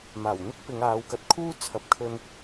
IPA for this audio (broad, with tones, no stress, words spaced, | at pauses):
maː˨˩wn̪ɪ˥k̚pɪ˨˧ŋ aː˨˧wkɐ˨t̚kʰuː˥ t͡sʰɐ˨p̚kʰɵ˧n